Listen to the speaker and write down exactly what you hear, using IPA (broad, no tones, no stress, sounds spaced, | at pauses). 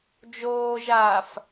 d͡ʒ oː ʒ aː f